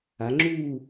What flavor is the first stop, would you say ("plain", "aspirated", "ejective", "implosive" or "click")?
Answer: click